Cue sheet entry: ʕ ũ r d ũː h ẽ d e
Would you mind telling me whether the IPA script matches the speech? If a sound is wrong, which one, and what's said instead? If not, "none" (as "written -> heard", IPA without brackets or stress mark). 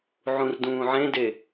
h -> ʕ